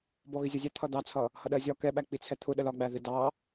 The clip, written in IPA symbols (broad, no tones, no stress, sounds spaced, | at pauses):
b ɔ ɣ ɪ zʲ ʌ zʲ ɛ t̪ʰ ʌ d̪ ɑ t͡sʰ ʌ | h ʌ ɗ ɜ zʲ ɒ k ɛ ɓ æ k͡p i t͡sʰ ɛ t̪ʰ ʊ ɗ ə l ɒ ɡ͡b æ ð ɪ d ɑ